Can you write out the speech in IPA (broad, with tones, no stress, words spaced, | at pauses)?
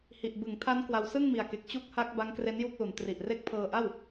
hi˨˩ʔ bɯ˩˦ŋtʰa˦˥n kwa˧w sɯ˥˩ŋmi˨˩a̯ke˨˩k̚ t͡ɕu˦˥k̚ha˦˥k̚ ba˦˥ŋkre˦˥n ju˥˩k̚lu˩˦n tri˨˩ʔre˦˥k̚pʰɤː˧ʔa˥˩w